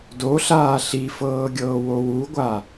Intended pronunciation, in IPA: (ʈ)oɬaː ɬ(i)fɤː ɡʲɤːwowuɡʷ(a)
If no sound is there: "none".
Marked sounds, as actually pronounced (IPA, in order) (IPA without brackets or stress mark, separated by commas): d, i, a